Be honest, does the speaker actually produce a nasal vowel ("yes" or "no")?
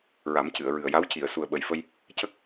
no